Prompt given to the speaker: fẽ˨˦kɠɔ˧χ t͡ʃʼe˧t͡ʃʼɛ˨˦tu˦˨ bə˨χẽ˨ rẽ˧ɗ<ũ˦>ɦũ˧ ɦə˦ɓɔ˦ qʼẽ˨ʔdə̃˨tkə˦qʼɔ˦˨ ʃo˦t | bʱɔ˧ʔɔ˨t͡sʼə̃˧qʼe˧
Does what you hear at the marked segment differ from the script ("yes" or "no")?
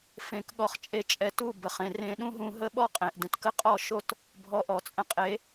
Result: no